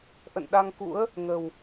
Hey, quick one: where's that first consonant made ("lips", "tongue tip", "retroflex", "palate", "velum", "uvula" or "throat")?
throat